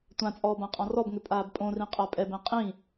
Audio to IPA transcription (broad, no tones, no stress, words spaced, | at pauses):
tʷãt͡sʼɔː bãqʼɔ̃rɔbŋʏ pʼaːbpʼõrĩ qʼapʼɛbɛ̃ qʼĩ